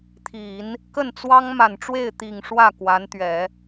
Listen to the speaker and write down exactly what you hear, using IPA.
t̪ʰi˨˩˦n | kə˥˩nt͡swɑ˥ŋ ma˨˩nʈ͡ʂwe˥˩ɪ̯ t̪i˨˩ŋ ʂwä˥˩ kwa˧˥nt̪ɥɛ˨˩˦

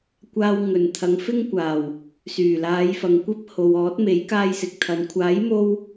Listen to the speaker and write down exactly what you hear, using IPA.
kʷaː˧wŋɵ˨˩nt̪ʰɐ˨˧ŋ fɪ˥ŋkʷaː˨˩w | syː˨˩laː˨˧j fɐ˨ŋkʷɐ˥p̚ ho˨wɔː˨˥t̚me˨˥j kaː˥jsɪ˨k̚t̪ʰɐ˨˧n kʷʰaː˨˥j mo˥w

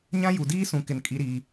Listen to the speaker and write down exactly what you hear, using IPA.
ɲã˦ju˨diː˦ sũ˨kɪ˨n kʼi˦ɾiː˦

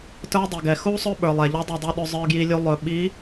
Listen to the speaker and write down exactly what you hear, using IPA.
tə˞˦ dˤi˨ɡɛ˨ xu˦sˤɵ˦ ɓə˞˨lˠɛ˨ʎɔ˦dˤɵ˦˨ dˤu˦ɗɵ˦ zˤə˞˦ɡji˦ lʲu˦ lˠɵ˨ ɓi˨˦

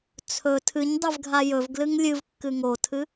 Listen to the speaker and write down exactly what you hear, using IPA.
t͡sʰɵ tʰɨɲdˤɨvɡʱa jɵvɡlɨŋ lʲɨvkːɨ ŋotʰɨ

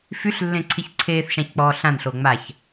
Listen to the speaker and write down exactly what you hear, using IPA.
fyɬlːẽǀʰiç ǀʰeːθʃãçk͡pɔː ɬãnɬo ŋ͡maç

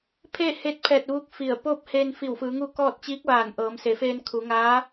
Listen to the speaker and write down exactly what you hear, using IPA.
pʰeː˥˨heː˧t̚pʰɛː˧˩t̚ ʋu˧˥k̚fi˧˩ə̯ poː˥˨p̚heː˧nfi˧˩wfɯː˩˧ ŋu˥˨kɔː˥˨t̚ t͡ɕiː˧˥k̚ʋaː˧˩n ʔɤː˩˧mse˩˧feː˧n kʰu˩˧ŋaː˧˥

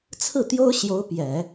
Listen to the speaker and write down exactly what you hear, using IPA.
t͡sʰɹ̩˥˩t̪jo˥ʊ̯ ɕjo˧˥ʊ̯pjɛ˨˩˦

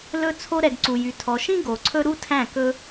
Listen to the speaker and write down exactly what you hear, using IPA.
lɵ˧ t͡sʰo˧ɾɛ˨ɡ ǀu˨jy˨tʰɔ˨ʃĩ˦ ɡo˨ǀʰɵ˦ ɾu˦tʰæ̃˦˨ kɵ˦

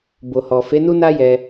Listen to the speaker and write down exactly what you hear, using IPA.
bo˨hɔ˨fe˨˦ nu˦na˦jɛ˧

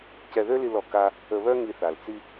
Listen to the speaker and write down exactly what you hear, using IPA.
cɛ˧ðø˥li˧lɔ˩ ka˧ | ə˧βœ˥ŋi˧θa˩l t͡si˧

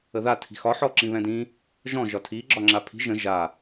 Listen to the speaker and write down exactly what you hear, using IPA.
əða tʰi̤xɒ ħɔǁĩβɛ̃dĩ | ʒɔ̃ ʒɒtʰi ɡ͡ǁɒŋ͡ǁapʰi̤ ʒə̃ ʒa

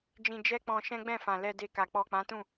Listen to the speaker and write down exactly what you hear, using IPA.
d͡ʒĩ˧ d͡ʒɛ˦k͡pɔ̃˧ ʃɛ̃˦ɡ͡bɛ̃˦˨fã˨ lɛ˧de˧ka˨ k͡pɔ˨k͡pã˨˦tũ˦˨

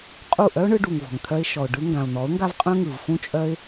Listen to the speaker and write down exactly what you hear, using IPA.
qʼu˦˨ ʔœ˦ʊ̯ɳɯ˧ɖu˨ŋ vɔ̤˨ŋt̪ʰœ˦ɪ̯ ʃɔ˨ʊ̯ɖɯ˧ ŋɡã˨ʊ̯n̪ɔ˨˦ʊ̯ŋɡa˦vqʼœ̃˦ ŋɯ˨vfũ˦t͡ʃʼœ˦ɪ̯

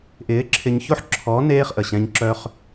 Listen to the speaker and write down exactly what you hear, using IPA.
ʔɪː˨˦ǁʰɪ˧ɲço˦ħ ǁʰɔ˨˦ neː˦χʔə˨ɕɛ̃˧ɲ ǁœ˧χ

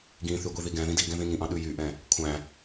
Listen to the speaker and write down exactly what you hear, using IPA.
ɡĩθy ɡʷiðiɡɛ̃ðĩ di ɡɛ̃ðĩŋĩʔɑ̃ ɗʉjyʔɛ̃ | kʷʰæ̃

